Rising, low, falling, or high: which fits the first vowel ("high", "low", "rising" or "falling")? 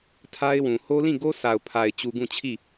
high